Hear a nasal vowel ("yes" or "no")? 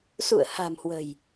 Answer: no